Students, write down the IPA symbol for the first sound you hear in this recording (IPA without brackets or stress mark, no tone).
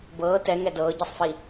b